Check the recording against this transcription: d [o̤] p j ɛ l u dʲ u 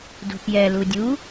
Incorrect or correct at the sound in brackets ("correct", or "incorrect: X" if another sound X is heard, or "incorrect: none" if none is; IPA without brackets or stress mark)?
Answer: correct